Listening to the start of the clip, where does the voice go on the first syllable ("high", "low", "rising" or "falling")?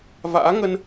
rising